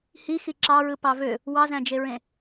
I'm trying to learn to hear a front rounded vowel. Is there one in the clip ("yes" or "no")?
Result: yes